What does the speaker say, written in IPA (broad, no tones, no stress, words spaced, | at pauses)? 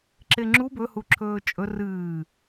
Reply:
ǁeŋ͡ǁu bɵhuǁʰɵː t͡ʃʼɵ rɨː